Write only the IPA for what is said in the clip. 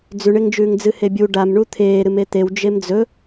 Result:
d͡z ʉ ɳ e ŋ d͡ʒ ʉː ŋ d͡z ɨ h e bʲ u ɖ a m ɳ u t̪ʰ eː ɾ ɨ m e t̪ e w d͡ʒ e m d͡z ɵ

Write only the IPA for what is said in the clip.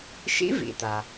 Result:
ʃ ḭ˧˥ v ḭ˩ t̪ a˩

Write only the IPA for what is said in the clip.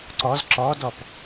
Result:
ǀ ɔ z ǁ ɔ d ɔ p

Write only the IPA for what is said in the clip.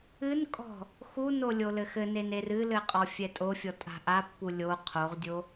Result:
ɨ n kʼ ɔ̤ | x u n o lʲ o l ɘ x ɘ n e n e r ɨ l ɘ qʼ ɔ fʲ ɛ tʼ o fʲ ɔ tʼ a̤ ʔ a pː u lʲ o qʰ o ʁ dʲ o

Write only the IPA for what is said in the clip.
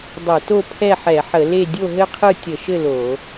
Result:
dˤ ɘ˧˩˧ t o˥˨ pʰ ɛ˥˨ ħ ɛ˧˩˧ ħ ə˧˩˧ l e˥˨ dʲ o˥˨ ɦ ɘ˥˨ qʰ ɯ˥˨ tʲ ə˧˩˧ ʃ ɘ˥˨ l o˧˩˧

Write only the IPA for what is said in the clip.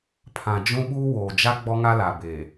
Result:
pʰ ã˨ d͡ʒ ũ˦ ɓ uː˦ w oː˨ d͡ʒ a˦ ɡ͡b ɔ˦ ŋ a˦ l a˨ b eː˨

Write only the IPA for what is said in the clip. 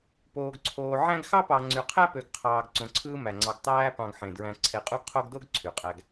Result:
p oː˨ ɡ ǀʰ oː˨ ʕ æ̃˥ ɡ x ɑ˥ p ɑ˨ ŋ͡ǀ y˨ qʰ æ˥ p ø˨ ɡ qʰ ɑː˨ ɡ ǀ õ˨ ǀʰ ɯː˦ m æ˩ ŋ͡ǀ ɑ˨ ɡ tˤ æː˦ p ɑ̃˨ ɡ ħ ẽ˩ d ɹ æ̃˨ ǀʰ e˨ qʼ u˦ ɡ qʰ o˦ ɡ d o˥ ɡ ǀʰ y˩ qʼ æ˨ ɡ

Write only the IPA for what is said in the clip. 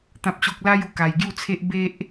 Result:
t̪ ã˦ p̚ ɕ o˦ k̚ l a˦ j u˧ k a˧ j ɡ j u˥˧ t͡sʰ e˦ ʔ b e˦ ʔ

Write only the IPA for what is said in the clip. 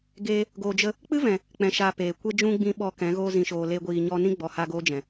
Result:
ɡ eː˧ | ɡ oː˨ d͡ʒ ə˧ | k͡p ɨ˦ v ɛ̃˨ | k͡p ɛ̃˨ ʃ aː˨ p eː˨ kʷ e˦ d͡ʒ ũ˦ ɡ͡b ĩ˧ ɓ ɔ˧ k ɛ̃˨˦ ɣ oː˧ z ĩ˨ ʃ oː˨ l e˦ ɡʷ iː˧ ɲ ɔ˦ n ĩ˦ ɡ͡b ɔ˨ h a˧ ɡ oː˦ d͡ʒ ɛ̃˨

